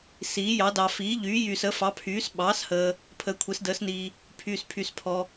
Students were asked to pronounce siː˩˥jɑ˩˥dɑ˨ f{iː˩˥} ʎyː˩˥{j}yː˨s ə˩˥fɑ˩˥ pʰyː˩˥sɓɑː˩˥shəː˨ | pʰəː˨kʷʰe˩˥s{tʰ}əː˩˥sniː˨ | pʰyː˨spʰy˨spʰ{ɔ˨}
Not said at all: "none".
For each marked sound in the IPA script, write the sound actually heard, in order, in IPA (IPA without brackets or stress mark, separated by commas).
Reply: iː˩˥, j, d, ɔ˨